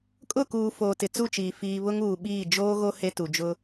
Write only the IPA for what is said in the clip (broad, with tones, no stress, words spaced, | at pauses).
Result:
kʼʊ˦˨kuː˨ foː˨tɪ˨t͡su˦˨t͡ʃiː˨ fiː˨ βʊ˦ŋuː˨ɓiː˦˨ d͡ʒoː˦ɣo˦ he˦tu˨d͡ʒʊ˦